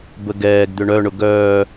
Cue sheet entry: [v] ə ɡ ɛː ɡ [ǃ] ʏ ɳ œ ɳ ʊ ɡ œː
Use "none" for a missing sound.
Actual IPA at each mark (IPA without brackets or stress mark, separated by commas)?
b, d̪